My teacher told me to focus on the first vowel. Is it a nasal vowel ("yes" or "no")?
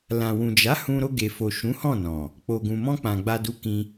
yes